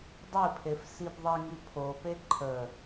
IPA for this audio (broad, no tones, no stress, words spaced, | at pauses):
dˤipʰef sibðˤiŋi pʰope ǃʰə